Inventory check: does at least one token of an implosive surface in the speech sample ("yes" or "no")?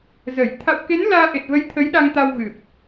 yes